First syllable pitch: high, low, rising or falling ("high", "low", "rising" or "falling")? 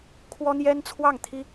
high